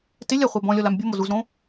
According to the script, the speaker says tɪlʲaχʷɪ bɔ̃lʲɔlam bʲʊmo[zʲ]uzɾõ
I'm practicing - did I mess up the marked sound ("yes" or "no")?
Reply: yes